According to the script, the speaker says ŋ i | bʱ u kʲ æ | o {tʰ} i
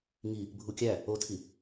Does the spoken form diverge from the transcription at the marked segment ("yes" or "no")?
no